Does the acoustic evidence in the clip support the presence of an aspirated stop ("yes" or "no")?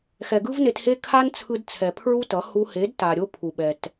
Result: yes